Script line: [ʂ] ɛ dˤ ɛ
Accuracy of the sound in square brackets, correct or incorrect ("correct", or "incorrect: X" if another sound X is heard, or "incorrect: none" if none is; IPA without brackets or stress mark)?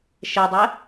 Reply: incorrect: ʃ